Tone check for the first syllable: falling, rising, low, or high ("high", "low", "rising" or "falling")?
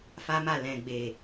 high